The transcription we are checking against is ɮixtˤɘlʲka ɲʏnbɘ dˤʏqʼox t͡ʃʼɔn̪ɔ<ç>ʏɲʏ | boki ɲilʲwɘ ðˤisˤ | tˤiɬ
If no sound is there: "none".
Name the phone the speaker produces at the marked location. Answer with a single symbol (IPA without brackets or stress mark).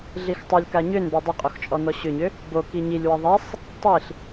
ɕ